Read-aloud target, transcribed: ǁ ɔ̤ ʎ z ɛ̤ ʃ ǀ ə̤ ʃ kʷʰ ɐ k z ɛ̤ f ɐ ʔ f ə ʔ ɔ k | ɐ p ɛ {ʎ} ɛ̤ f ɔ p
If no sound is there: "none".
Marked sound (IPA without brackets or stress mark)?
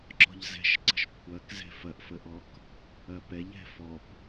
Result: ʎ